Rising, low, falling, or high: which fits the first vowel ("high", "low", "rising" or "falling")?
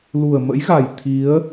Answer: low